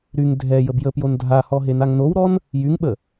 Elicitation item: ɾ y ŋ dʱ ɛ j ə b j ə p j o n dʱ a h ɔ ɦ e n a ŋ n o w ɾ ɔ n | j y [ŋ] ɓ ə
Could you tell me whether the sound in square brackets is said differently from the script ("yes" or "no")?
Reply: no